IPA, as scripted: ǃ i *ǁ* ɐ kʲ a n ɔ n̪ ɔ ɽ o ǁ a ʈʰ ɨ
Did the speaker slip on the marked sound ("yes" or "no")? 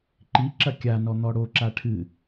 no